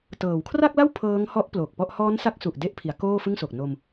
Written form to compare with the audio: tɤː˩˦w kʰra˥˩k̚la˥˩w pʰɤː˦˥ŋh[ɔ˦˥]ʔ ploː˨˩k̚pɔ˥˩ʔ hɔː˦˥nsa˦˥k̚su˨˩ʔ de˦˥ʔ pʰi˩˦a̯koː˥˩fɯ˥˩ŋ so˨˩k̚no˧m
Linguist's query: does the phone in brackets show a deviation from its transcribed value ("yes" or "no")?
no